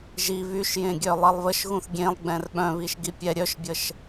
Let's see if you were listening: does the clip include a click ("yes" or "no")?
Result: no